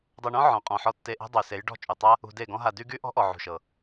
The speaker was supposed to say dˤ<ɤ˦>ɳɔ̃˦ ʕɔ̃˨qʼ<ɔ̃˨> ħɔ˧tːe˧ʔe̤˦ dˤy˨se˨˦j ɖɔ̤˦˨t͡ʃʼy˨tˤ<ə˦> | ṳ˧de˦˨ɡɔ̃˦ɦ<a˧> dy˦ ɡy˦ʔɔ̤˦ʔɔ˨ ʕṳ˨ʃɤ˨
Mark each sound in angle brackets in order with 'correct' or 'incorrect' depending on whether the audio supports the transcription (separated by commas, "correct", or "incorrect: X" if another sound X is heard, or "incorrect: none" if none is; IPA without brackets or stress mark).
incorrect: ɤ˧, correct, incorrect: a˦, correct